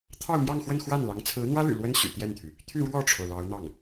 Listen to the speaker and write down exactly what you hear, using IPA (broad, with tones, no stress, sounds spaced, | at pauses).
t̪ʰ ɑ˥˧ ʊ̯ m j ɑ˥˧ ŋ x w ə˥˧ n x w a˥˩ n l ɑ˧˥ ŋ t͡sʰ ɹ̩˧˥ n̪ w ä˥ l y̰˨˩ l w ə˥ n ɕ y̰˨˩ t̪ j ɛ˥˩ n t̪ʰ y˩ | t̪ʰ y˥˧ ɻ w ɔ˥˩ ʈ͡ʂʰ o˩ ʊ̯ l ɑ˧˥ ʊ̯ n̪ ɑ˥˩ ŋ